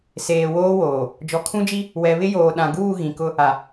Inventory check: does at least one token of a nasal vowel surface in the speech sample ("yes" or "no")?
yes